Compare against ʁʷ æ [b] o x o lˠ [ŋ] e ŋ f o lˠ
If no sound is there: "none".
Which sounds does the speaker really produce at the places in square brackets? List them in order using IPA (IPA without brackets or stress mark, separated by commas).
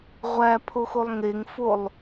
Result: pʰ, ŋ